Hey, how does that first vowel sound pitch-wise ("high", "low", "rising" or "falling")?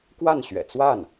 falling